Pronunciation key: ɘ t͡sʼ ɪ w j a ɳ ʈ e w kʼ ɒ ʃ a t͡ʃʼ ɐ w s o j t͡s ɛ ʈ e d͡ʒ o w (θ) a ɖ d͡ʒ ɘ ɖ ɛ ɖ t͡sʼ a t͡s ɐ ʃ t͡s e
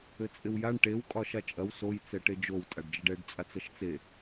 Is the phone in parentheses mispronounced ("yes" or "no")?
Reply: yes